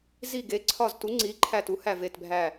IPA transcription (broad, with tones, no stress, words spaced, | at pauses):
zi˧˩ɡe˩˥ǀʰɒ˧˩ztu˩˥ ŋ͡ǀi˩˥ ǃʰæ˧˩tu˩˥hæ˧˩ ve˧˩tbʱæ˧˩